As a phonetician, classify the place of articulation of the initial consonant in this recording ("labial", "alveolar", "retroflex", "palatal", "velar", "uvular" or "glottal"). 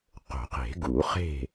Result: uvular